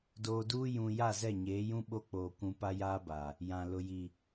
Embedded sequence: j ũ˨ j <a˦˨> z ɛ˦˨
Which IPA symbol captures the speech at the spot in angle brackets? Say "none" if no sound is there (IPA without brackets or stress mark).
a˦˨